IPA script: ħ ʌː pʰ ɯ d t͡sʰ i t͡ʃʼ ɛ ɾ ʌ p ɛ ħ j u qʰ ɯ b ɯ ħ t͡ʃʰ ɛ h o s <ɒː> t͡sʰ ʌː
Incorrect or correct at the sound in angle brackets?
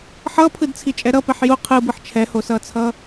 incorrect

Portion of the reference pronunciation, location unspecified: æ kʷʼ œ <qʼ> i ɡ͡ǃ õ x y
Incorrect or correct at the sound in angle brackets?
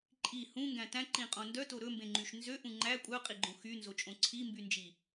correct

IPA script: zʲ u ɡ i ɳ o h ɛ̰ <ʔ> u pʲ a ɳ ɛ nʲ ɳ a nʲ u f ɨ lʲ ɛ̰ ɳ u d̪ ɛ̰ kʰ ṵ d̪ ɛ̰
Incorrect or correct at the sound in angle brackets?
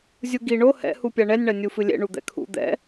incorrect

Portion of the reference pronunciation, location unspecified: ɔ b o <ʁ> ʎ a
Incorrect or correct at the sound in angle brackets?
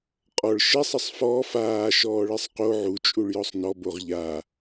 correct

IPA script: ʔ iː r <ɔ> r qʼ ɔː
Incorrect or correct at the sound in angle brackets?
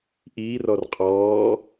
correct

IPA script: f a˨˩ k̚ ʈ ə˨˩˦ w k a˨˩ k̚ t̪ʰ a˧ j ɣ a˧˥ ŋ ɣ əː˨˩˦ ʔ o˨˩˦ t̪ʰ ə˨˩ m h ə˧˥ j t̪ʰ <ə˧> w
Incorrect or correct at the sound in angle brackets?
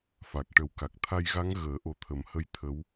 incorrect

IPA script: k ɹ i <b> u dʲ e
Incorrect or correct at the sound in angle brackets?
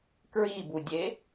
correct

